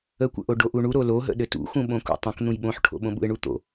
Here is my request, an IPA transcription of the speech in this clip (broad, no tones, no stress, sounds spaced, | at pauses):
ə kʷ ə̰ ʔ o ɖ o ʔ u ɳ u ɾ o l o ɦ ə̰ ɗ ɘ t ṵ x ũ ɓ õ k ṵ tˤ ə̃ k n̪ ũ j ɓ õ ħ ʈʰ o̰ ɓ õ ɓ ṵ ɪ̯ ɳ u t̪ o̰